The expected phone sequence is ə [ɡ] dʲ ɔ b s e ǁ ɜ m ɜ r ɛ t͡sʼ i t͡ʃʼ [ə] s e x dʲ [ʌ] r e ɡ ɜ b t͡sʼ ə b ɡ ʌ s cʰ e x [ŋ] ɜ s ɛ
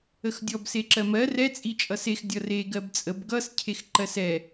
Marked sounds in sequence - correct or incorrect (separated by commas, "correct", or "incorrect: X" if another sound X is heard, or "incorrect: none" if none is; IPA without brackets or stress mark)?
incorrect: x, incorrect: ʌ, correct, incorrect: ǃ